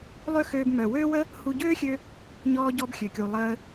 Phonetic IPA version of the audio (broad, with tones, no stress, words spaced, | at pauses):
lˠø˦xøː˧b mœ˨wøː˦wə˦ | hu˧ɟøː˦xʲø˧ | ɲɔː˧ɟɔ˧b xʲø˨kʲu˨ lˠəː˧